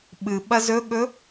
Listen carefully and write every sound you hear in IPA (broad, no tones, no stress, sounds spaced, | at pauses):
ɓ ɨ ɓ ɐ z ɵ ɠ ɵ